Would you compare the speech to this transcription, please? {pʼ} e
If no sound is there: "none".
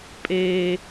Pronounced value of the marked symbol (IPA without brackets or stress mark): pʼ